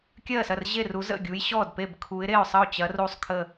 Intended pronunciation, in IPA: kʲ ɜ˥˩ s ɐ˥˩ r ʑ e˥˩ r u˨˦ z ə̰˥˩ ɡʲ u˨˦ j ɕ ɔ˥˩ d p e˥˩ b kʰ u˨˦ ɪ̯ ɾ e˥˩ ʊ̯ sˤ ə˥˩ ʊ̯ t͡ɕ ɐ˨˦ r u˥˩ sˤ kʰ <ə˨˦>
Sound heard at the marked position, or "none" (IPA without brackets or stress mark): ə˥˩